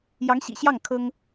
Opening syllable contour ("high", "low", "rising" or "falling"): rising